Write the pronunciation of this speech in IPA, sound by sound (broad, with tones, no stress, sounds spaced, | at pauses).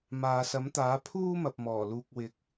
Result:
m aː˨ s ɐ˨˥ m t̪ aː˨˥ pʰ uː˥ m ɐ˨ p̚ m ɔː˨˩ l uː˨ k̚ w ɪ˨˥ k̚